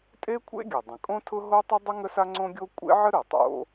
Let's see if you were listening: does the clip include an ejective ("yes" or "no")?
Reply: yes